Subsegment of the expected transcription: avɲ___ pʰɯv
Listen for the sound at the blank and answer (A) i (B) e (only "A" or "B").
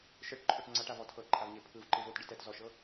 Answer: B